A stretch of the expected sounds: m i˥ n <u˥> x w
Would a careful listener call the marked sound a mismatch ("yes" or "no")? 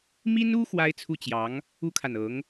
no